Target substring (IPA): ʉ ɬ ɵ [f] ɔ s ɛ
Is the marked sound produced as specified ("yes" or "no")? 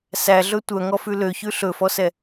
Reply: yes